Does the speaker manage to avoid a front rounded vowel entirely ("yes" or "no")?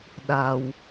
yes